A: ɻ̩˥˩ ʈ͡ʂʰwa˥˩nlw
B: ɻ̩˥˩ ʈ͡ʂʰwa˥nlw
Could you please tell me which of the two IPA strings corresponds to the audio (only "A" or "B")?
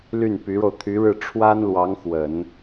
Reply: B